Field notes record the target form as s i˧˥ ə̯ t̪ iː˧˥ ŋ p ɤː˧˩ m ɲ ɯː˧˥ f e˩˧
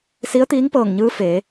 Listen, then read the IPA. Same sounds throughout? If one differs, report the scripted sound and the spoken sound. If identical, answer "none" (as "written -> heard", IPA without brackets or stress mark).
m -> ŋ